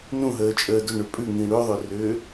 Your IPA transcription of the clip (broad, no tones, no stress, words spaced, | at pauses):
nũɦəː t͡ʃʼəːdʏ ɳʏpʼʉŋĩ ɽøðˤørʏː